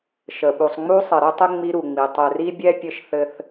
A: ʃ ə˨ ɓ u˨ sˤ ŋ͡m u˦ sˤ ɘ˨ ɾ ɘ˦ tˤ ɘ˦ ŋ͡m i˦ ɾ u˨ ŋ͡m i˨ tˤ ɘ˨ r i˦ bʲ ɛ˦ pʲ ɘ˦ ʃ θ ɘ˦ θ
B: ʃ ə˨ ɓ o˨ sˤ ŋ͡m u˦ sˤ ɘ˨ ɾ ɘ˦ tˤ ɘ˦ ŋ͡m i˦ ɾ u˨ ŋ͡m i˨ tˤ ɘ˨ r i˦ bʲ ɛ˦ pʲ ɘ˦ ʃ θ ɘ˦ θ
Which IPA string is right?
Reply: A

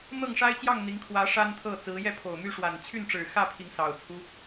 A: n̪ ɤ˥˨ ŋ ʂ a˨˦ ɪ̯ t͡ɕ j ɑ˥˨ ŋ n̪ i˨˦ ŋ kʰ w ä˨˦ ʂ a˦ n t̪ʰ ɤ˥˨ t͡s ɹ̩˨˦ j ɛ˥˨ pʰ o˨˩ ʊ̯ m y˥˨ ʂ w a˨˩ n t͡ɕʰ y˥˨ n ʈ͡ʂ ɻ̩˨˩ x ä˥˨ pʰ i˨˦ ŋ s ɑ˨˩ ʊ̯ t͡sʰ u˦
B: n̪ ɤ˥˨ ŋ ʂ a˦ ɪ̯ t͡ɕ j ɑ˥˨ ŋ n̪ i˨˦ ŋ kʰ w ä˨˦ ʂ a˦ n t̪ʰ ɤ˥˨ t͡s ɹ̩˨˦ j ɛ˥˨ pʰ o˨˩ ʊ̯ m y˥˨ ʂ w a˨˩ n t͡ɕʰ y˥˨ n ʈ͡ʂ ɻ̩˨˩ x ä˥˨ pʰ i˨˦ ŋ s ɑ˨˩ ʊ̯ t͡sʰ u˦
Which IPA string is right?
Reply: B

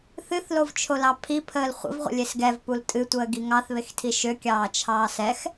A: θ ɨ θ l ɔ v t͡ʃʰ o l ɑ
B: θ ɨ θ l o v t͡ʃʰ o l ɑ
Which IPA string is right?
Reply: B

